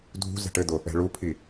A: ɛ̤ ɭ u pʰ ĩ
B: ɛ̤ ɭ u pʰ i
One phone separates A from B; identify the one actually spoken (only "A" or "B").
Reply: B